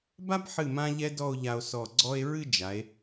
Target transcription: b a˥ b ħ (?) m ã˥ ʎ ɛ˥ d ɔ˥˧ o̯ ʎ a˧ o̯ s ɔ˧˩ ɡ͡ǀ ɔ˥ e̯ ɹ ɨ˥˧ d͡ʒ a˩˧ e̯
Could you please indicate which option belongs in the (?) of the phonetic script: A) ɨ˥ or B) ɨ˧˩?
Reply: B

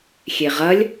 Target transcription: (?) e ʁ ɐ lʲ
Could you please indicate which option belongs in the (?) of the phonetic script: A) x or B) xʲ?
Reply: B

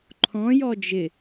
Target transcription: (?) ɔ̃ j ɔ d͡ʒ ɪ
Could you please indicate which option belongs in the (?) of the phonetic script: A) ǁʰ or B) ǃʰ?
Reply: B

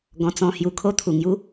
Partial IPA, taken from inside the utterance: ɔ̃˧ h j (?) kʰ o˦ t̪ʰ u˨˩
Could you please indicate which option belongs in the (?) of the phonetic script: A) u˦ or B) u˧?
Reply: B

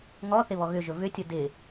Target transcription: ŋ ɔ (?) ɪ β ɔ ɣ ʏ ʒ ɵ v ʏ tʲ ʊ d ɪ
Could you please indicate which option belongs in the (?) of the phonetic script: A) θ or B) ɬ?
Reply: A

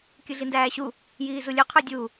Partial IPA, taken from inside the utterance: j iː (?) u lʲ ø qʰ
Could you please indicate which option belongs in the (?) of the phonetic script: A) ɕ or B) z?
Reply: B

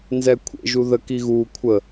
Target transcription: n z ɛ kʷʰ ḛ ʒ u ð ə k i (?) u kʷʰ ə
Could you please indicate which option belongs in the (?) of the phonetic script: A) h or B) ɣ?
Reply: B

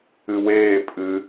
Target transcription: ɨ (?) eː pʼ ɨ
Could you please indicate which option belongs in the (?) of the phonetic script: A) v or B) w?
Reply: B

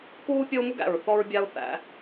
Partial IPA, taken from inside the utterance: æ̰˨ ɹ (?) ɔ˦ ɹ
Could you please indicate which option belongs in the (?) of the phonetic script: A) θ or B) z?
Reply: A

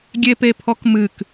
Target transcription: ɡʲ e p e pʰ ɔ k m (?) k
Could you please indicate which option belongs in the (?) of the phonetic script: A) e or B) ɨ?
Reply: B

